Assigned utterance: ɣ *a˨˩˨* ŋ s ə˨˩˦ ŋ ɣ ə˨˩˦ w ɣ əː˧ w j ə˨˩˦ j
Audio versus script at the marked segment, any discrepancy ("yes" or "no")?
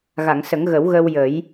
no